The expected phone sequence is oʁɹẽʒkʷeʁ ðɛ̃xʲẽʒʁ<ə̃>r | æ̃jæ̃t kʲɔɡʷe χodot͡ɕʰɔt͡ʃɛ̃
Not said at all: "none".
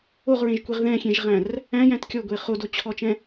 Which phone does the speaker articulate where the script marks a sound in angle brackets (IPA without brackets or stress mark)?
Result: æ̃